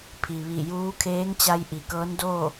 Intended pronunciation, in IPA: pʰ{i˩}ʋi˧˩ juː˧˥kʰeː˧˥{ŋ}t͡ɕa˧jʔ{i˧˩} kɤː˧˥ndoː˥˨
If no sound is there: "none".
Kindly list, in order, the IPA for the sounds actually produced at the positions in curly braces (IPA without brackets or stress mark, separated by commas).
i˩, ŋ, i˩